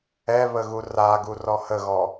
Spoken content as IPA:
ɛ β ə ɣ u r a ɡ u r ɔ h ə ɣ ɔ

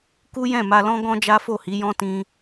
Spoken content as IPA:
k u˦ j ɛ̃˦˨ m a˧ l ɔ̃˦ ɡ ɔ̃˦ d͡ʒ a˦ f o˦˨ h i˨˦ j ɔ̃˦ t ĩ˧

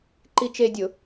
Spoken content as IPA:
ǃ i t͡ʃ e dʲ ʊ

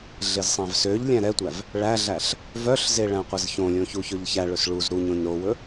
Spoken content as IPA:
ɮ e z sˤ æ̃ v s ø ʎ lʲ æ̃ ɾ ɛ tʷ æ v | ɭ æ ɮ æ ɬ | v œ ɬ z e ɭ æ̃ qʷ ɛ z ç õ lʲ õ ç u ç ɵ ʎ ç æ ɭ ɵ s ɭ u z ɾ u ɲ õ ɲ ɾ o w ɵ

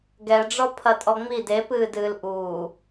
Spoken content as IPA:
ɡ ɛ ɖ͡ʐ ɔ pʰ ɐ tʼ ɔ ŋ͡m i d e p ɨː d ɨː l ʔ uː

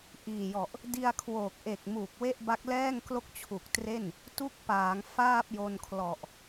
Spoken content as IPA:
ʔ iː˨˩ j ɔ˨˩ ʔ | d i˧ a̯ kʰ w oː˨˩ k̚ ʔ e˨˩ k̚ m u˨˩ k̚ w e˥˩ ʔ b a˦˥ k̚ l ɛː˥˩ ŋ k l o˥˩ k̚ t͡ɕʰ u˨˩ k̚ t r e˥˩ n | t u˥˩ k̚ p aː˩˦ ŋ f aː˥˩ p̚ j o˧ n kʰ l ɔ˨˩ ʔ

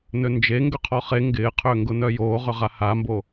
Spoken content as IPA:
n ø n d͡ʒ e ŋ ɡ ʏ qʰ ɔ χ e ŋ ɡ ɪː qʰ ø ŋ ɡ ʊ n œ j oː ʁ ʏ ʁ a h a m b o

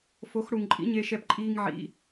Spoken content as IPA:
f o˨˦ x ɽ u˨ ŋ ǃʼ ḭ˨˦ ɲ e˧ ʃ ɛ˧ p ǃʼ iː˦ ŋ ʕ ḭ˧

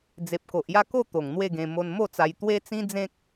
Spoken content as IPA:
d͡z e˨ p̚ k o˨ ʔ j a˥˧ k o˥˧ t̪ o˨˩ ŋ n̪ w e˥˧ ɡ ẽ˧ m o˧ n m o˥˧ t͡s a˧ j t̪ w e˦ t͡s ĩ˦ d͡z ẽ˦ k̚

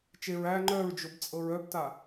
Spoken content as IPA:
t͡ʃ e ɹ æ ŋ͡ǃ œ ɹ d͡ʒ o b t͡sʼ ɤ ɹ œ b t a

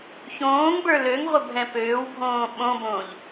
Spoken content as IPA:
ç õː ŋ b ə˞ l ø ŋ ʁʷ ə bʱ ɛ̃ p øː w bʱ õː ɓ õ b õː ʎ

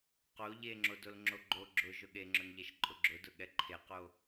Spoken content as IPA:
q o ʎ e ŋ͡ǁ o d o l ŋ͡ǁ o ɡ͡ǃ o ɡ͡ǁ ʊ ʒ ʊ ɠ e ŋ͡ǁ ʊ n ʎ ɛ ʃ ǃʼ ʊ ɡ͡ǁ ʊ d ʊ ɠ ɛ ǃʰ e q o

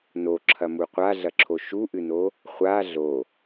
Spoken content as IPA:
n o ǁʰ ɐ m u qʷ a ɮ ɐ ǁʰ o ʃ u ʔ ɨ n o | χʷ a ɮ o

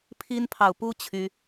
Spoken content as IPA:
pʰ i˦ n pʰ ɑ˨ ʊ̯ p u˦ t͡ɕʰ y˦

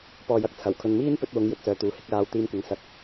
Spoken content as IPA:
p ɔː˨ j ɐ˧ k̚ t͡sʰ ɐ˨˩ w kʰ ɵ˨ n m iː˥ n p ɵ˧ t̚ w ʊ˨˧ ŋ j ɵ˨ t̚ s œː˨ t̪ uː˨ h ɪ˨˥ k̚ l aː˨˧ w t̪ iː˧ m kʷ ɐ˨ ŋ s ɐ˧ k̚

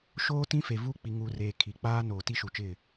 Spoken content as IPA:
ʃ oː˦ t ĩ˦ f e˨ v u˦˨ k͡p i˨ ŋ uː˨ r eː˨ kʰ i˨ k͡p aː˦ n oː˨ t i˦ ʃ u˨ t͡ʃ ɪ˦˨

